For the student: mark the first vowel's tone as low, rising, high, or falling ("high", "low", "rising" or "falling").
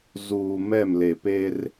low